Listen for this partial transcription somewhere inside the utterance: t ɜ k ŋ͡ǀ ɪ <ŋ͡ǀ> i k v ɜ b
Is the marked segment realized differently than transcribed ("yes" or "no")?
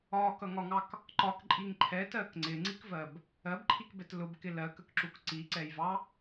no